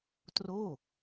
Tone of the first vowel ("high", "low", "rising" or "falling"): falling